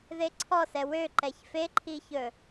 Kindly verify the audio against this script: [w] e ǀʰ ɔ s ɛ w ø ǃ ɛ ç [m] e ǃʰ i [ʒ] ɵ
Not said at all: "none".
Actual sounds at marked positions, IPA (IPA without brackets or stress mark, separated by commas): ð, f, ç